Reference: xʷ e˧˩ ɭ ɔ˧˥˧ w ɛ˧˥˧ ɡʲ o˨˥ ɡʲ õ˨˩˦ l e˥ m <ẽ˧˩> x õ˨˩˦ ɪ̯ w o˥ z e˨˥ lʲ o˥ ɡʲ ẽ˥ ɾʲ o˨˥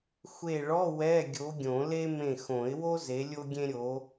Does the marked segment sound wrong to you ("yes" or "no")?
no